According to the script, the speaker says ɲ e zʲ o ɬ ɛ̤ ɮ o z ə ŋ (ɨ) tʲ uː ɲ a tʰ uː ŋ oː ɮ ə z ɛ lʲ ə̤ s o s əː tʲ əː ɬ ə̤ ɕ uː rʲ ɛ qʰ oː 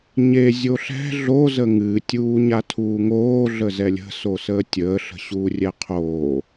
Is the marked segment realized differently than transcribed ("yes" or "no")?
no